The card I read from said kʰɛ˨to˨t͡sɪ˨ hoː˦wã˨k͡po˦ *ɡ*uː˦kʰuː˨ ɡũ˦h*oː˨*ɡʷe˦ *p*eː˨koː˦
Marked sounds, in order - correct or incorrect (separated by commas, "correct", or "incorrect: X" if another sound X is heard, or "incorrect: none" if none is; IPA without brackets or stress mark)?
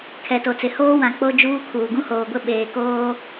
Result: incorrect: d͡ʒ, correct, incorrect: ɓ